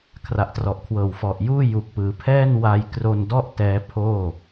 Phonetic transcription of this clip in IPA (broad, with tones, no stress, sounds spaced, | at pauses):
kʰ r a˨˩ ʔ t r ɔ˨˩ ʔ kʰ w ɤː˨˩ w f ɔ˨˩ ʔ j uː˥˩ j u˨˩ k̚ p ɯː˩˦ pʰ ɛː˥˩ n w a˧ j k r o˧ n d ɔ˥˩ ʔ t ɛː˦˥ pʰ oː˥˩